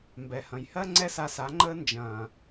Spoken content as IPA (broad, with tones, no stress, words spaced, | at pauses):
mbɛ˨hɐ̃˨jhɜ˦ ŋ͡ǀɛ˦sa˧sa˨˦ŋ͡ǃəː˦ nd͡ʒɐ̃ː˨